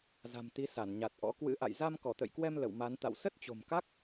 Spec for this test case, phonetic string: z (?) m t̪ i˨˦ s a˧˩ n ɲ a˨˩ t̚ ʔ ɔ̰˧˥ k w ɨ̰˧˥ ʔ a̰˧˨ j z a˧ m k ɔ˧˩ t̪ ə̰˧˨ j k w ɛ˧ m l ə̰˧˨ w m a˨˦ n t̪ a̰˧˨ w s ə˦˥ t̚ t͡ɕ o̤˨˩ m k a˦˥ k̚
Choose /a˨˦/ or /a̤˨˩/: a̤˨˩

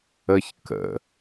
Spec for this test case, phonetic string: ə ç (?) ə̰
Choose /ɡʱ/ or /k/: k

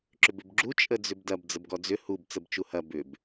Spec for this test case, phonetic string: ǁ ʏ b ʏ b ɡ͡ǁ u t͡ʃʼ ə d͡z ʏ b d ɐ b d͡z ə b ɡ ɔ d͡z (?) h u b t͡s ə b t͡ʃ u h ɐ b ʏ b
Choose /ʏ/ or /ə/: ʏ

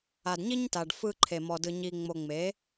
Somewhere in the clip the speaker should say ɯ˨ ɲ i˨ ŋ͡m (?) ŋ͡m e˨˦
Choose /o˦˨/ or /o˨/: o˨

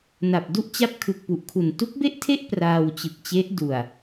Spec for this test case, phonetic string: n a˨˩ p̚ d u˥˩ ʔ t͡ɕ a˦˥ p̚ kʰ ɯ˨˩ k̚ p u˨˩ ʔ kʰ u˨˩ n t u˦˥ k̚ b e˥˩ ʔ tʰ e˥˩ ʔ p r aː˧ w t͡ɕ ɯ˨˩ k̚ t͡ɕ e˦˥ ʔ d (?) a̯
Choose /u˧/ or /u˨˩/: u˨˩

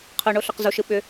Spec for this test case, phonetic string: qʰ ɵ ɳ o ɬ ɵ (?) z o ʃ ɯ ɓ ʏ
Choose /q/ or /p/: q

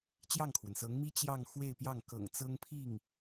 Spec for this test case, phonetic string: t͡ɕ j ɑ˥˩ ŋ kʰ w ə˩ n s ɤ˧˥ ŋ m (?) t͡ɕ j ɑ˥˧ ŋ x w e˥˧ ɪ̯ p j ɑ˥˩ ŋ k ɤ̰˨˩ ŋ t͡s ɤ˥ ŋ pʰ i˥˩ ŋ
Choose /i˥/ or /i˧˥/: i˥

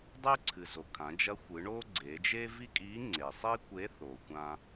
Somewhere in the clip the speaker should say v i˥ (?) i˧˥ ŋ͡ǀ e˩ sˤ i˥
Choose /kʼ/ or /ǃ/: kʼ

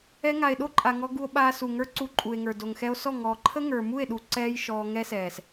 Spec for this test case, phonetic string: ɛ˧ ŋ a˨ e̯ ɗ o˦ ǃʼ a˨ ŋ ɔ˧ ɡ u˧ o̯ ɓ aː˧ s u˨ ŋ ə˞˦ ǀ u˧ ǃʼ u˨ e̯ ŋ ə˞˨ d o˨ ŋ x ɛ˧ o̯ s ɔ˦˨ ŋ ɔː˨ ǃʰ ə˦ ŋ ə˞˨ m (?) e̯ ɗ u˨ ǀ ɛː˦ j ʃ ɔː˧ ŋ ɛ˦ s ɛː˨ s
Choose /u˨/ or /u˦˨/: u˦˨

